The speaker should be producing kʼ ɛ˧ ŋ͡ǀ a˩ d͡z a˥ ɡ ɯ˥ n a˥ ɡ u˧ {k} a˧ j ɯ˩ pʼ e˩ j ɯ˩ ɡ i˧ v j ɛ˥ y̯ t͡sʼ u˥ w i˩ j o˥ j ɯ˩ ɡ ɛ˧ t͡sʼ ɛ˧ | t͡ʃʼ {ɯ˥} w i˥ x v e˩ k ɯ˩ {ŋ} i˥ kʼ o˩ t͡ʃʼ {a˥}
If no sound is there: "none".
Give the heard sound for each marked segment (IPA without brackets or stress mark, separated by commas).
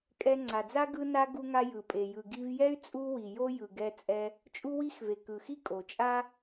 ŋ, u˥, x, a˥